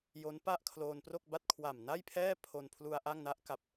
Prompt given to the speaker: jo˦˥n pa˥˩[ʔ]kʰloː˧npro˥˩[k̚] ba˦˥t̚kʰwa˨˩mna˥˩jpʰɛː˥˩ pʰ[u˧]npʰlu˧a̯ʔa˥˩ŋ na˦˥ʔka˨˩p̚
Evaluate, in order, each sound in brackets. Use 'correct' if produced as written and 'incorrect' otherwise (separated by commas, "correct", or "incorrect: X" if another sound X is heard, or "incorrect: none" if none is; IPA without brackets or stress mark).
correct, correct, incorrect: o˧